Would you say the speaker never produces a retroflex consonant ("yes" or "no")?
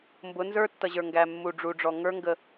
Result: no